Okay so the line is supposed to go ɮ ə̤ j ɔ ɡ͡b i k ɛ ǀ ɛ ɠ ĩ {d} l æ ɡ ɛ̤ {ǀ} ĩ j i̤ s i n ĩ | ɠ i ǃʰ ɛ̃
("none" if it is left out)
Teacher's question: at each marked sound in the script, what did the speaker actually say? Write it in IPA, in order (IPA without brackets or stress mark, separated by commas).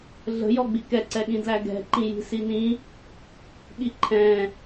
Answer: d, ǃ